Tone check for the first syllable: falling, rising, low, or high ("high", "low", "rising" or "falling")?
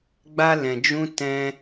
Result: high